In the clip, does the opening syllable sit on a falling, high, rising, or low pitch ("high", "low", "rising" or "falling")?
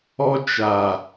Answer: high